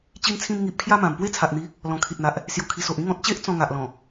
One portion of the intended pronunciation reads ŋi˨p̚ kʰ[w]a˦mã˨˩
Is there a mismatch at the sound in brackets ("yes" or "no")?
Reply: yes